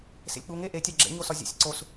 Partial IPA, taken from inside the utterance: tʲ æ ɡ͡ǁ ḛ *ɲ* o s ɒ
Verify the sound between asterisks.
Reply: correct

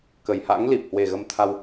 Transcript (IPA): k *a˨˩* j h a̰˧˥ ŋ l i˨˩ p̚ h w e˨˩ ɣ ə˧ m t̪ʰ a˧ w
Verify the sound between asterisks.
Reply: incorrect: ə˨˩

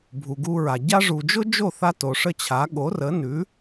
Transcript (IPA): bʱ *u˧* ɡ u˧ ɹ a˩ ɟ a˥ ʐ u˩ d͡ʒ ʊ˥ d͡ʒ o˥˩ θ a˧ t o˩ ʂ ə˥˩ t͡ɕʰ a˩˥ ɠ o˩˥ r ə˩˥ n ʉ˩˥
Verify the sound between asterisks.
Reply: incorrect: u˩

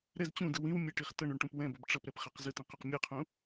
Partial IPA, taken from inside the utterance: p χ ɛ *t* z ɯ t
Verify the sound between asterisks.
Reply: incorrect: q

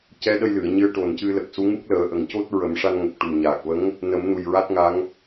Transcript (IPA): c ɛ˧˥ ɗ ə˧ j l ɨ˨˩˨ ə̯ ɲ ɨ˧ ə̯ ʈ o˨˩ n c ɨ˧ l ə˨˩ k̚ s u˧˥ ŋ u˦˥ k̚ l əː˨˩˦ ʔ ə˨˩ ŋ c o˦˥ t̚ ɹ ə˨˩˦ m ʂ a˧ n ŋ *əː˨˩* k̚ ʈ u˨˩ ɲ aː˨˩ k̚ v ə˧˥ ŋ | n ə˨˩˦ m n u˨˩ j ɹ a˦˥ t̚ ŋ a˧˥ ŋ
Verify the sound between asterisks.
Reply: incorrect: ə˨˩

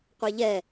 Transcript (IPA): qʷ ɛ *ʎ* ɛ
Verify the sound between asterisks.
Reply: correct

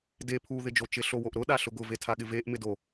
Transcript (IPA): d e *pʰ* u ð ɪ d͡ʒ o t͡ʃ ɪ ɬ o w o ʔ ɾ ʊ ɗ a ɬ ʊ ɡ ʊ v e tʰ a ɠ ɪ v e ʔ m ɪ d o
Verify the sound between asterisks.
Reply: correct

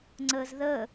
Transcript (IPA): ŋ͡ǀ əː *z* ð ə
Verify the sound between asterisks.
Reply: correct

